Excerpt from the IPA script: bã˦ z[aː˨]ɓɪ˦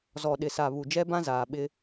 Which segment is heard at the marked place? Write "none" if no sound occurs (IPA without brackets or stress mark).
aː˨